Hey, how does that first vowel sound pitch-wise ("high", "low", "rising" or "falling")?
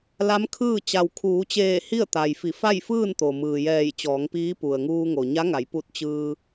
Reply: rising